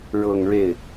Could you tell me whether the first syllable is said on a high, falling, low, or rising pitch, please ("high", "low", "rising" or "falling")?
falling